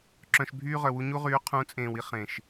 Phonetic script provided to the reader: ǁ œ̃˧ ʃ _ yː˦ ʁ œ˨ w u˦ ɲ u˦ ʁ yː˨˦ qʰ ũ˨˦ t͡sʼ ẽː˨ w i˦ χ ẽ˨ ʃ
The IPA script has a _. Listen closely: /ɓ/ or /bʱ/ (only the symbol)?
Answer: bʱ